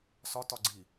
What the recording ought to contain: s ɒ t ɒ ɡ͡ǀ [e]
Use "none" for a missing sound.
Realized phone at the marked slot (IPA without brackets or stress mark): i